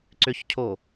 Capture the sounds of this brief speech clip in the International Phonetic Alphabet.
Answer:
ǀ ʏ ç cʰ o

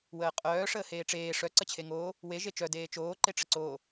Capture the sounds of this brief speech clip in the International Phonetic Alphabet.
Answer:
w əː qʼ œː ʂ əː h eː ʈ͡ʂ eː ʂ œ ǀ ə t͡ɕʰ e ŋ oː | w e ʒ e t͡ʃ œ d eː t͡ʃ oː ǃ e ʈ͡ʂ ə ǀ oː

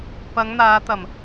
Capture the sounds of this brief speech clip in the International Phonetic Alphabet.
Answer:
p ɐ˨˧ ŋ n̪ aː˨˧ t̪ ɐ˨˩ m

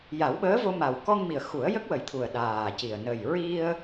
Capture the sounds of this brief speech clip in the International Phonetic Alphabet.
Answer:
j a˨˩˦ w ɓ əː˧˥ v o˧ m a˨˩ w k ɔ˧ ŋ m i˨˩ ə̯ x u˨˩˦ ə̯ j ə˦˥ k̚ w ə˨˩ j t̪ʰ u˨˩ ə̯ ɗ aː˨˩ c i˨˩ ə̯ n ə˨˩ j ɹ i˧ ə̯

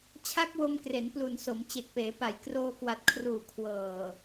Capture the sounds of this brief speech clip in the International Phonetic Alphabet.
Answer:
t͡ɕʰ a˦˥ k̚ w o˧ m k r e˩˦ n p l u˨˩ n s o˩˦ m t͡ɕ e˨˩ k̚ p eː˩˦ p a˨˩ j k r oː˧ k w a˨˩ t̚ kʰ r uː˨˩ kʰ w ɤː˨˩

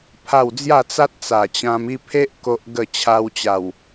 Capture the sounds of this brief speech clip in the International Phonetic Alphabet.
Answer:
pʰ a˥˧ w d͡z j a˥˧ t͡s a˦ t̚ t͡s a˨˩ t͡ɕ ã˧ m i˥˧ pʰ e˦ ʔ k o˦ ʔ ɡ ə˥˧ t͡ɕʰ a˧ w t͡ɕ a˨˩ w

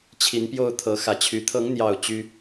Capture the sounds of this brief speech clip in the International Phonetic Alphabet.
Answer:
t͡ɕʰ i˨˦ n p j o˥˨ ʊ̯ t̪ʰ ɤ˨˦ x ä˨˦ t͡ɕʰ y˨˦ t̪ʰ ɤ˨˦ ŋ n̪ j ɑ˨˩ ʊ̯ t͡ɕ y˦

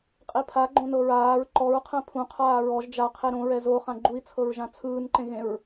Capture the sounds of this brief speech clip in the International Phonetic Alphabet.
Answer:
qʼ i pʰ a ɡ͡ǃ õ n ɤ ɹ aː ɹ ǃ ɔ ɹ qʰ ɛ̃ pʰ ũ qʰ aː ɹ ɔ ʒ d͡ʒ a qʰ e ɾ õ ɹ ɛ z o χ ã ɡ͡ǃ u i̯ t͡sʰ ɤ ɹ ʒ ã t͡sʰ ɯː n ǃ ẽ ɣ ẽ ɹ

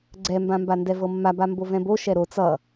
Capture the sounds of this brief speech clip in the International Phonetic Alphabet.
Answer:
ɡ͡ǀ ɛ m b ã m b a n d ɛ v ɤ mː a b a m b o v ɛ̃ b o ʃ ɛ ɾ o t͡s ʌ

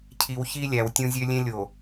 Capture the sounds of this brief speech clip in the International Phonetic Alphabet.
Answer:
cʰ i˨ w ç i˦ lʲ æ˨ w tʲ ũ˦ zʲ ø˦ lʲ ẽ˦ lʲ o˨

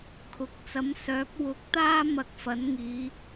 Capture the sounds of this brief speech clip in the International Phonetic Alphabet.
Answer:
kʰ ʊ˨ k̚ t͡s ɐ˨˥ m s œː˨˥ p̚ w ʊ˨˥ k̚ t̪ aː˥ m ɐ˧ k̚ f ɐ˨˥ n ŋ iː˨˧

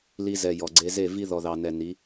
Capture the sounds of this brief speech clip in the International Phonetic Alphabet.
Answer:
l i˧ z ɛ˨ j ɔ˨ ɡ͡ǀ e˧ z e˦˨ v i˦ ð ɔ˨ ð ɑ˨ n ɛ˨ n i˨˦

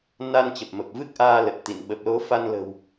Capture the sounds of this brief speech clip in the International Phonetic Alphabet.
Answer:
n a˧ n t͡ɕ ə˨˩ p̚ m ə˨˩ p̚ v ɨ˦˥ k̚ ʔ aː˧ l ə˨˩ t̚ t̪ ḭ˧˨ n ɓ ə˨˩ p̚ l o˨˦ f a˧ n l ə̤˨˩ w

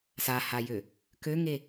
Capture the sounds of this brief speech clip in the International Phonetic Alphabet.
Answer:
s a h a j ø | k ø ŋ e

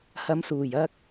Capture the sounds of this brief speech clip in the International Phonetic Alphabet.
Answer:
h ɐ˨˧ m s uː˨˩ j ɐ˧ k̚

